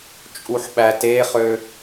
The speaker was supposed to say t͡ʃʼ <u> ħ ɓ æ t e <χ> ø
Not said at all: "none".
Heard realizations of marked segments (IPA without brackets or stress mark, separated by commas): u, χ